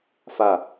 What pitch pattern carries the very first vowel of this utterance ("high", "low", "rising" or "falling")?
falling